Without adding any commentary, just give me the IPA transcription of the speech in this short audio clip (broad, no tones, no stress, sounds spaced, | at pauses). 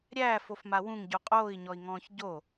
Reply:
ɾʲ æː f o f m a w ũ ŋ ɟ u qʼ oː i̯ ɲ ɔ i̯ ŋ ɔ̃ː ç ɟ o